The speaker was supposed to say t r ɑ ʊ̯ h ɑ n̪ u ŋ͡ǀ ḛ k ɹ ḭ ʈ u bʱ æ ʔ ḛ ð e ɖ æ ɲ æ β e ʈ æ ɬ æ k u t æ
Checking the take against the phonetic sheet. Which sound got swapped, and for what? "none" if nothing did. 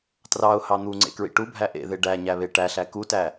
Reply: none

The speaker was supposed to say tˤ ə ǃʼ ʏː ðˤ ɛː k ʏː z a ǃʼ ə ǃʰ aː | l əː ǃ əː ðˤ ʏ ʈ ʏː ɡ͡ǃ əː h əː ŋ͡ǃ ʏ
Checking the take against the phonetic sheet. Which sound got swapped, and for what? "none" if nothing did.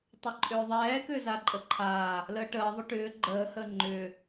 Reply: ǃ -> ʈ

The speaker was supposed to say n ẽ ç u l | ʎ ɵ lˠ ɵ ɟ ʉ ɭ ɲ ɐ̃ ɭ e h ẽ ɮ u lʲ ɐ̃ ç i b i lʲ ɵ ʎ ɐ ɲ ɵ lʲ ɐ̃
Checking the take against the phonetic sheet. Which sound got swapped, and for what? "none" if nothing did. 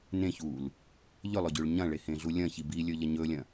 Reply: none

